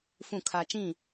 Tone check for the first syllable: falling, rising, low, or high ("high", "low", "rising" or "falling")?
falling